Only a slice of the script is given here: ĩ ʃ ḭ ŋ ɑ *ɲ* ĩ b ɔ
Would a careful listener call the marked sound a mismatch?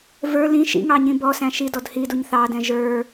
no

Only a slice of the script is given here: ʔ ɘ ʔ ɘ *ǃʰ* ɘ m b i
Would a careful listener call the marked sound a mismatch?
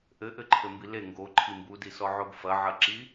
no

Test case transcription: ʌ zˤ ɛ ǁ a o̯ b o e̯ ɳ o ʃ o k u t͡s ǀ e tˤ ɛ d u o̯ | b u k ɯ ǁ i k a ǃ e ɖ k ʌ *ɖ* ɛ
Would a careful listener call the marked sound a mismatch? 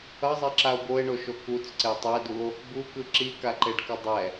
yes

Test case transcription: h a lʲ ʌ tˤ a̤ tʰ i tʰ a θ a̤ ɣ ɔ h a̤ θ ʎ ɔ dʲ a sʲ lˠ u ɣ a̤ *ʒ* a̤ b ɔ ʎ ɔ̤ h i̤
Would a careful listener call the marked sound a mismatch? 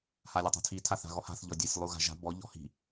no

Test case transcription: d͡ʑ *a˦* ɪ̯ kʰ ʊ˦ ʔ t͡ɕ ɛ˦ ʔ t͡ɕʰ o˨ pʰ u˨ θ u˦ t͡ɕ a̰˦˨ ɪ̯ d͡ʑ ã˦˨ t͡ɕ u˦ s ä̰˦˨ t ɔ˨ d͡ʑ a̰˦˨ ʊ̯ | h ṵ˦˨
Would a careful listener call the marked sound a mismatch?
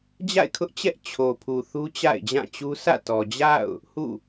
yes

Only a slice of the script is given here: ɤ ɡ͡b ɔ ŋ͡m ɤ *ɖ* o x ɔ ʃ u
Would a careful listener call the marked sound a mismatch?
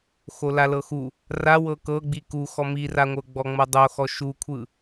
yes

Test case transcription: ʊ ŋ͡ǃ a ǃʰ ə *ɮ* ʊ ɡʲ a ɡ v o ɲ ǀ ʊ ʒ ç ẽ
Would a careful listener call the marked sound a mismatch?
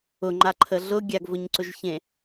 no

